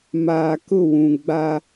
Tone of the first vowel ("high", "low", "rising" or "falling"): low